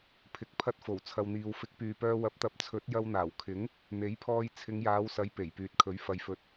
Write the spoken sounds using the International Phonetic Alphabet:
pʰɪ˨k̚pʰɐ˧t̚ fo˨˩wt͡sʰɐ˨wn̪iː˨w fɪ˨˥k̚pyː˨pœː˧ wɐ˨˥p̚t̪ɐ˨˥p̚ t͡sʰɵ˨˥t̚ jɐ˧wn̪aː˨˩wkʰɪ˨˥ŋ | n̪e˨˥jpʰɔː˧j t͡sʰɪ˨˧ŋjaː˨˧wsɐ˨˥j pe˨˩jpyː˨t̚kʰɵ˨˥ɥ fɐ˨jfɵ˨t̚

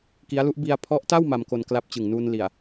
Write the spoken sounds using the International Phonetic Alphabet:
ki˦˥a̯lu˦˥ʔ bi˧a̯pʰɔ˦˥ʔta˥˩w ma˧mko˧n kla˦˥p̚t͡ɕɯ˨˩ŋnuː˧n li˨˩a̯

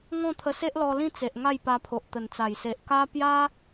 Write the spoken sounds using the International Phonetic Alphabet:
ŋɔ̃˥˧t̪ʰə˧se˦ʔlɔ˧ lĩ˥˧t͡se˨ʔ ŋa˥˧jpa˧pʰo˨ʔ t̪ə˨˩nt͡sa˨˩jse˨ʔ ka˦ pja˦

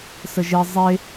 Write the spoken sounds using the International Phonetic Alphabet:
səʒe zˤe

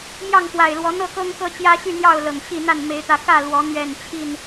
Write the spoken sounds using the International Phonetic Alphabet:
mjɑ˥˨ŋfwa˨˩ɪ̯lwɔ˨˦ n̪ɤ˥˨kɤ˦ŋkɤ˦ t͡ɕjä˦ɕy˥˨n̪jɑ˥˨ʊ̯ lɤ˨˩ŋɕi˥˨n̪a˥˨n me˨˦ɪ̯t̪ä˨˦ kä˥˨lwɔ˨˦ n̪ɥɛ˥˨nt͡ɕʰi˥˨n

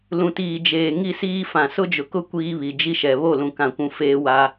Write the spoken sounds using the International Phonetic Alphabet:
lũ˨tiː˨d͡ʒeː˨ ŋi˦siː˦fã˨ sʊ˦d͡ʒʊ˨kʊ˦ kʷiː˦βi˨ d͡ʒi˦ʃɛ˨ βo˦˨lũ˨kã˨kʷũ˨ feː˦wa˦

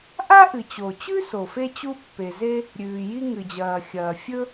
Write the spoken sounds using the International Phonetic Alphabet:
ʔa˥ʔɨ˩t͡ɕo˩t͡ɕʉ˥ so˩fe˥t͡ɕu˥ pːe˩ze˥ | ɾʲʉː˩ji˥ ŋɨ˩d͡ʑɐː˩xʲɐː˩ fʲɵ˥

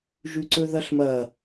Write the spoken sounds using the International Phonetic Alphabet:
ʒʉǀɵðɐɬmɐ

